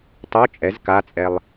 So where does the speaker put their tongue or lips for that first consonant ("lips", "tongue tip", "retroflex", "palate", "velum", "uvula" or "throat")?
tongue tip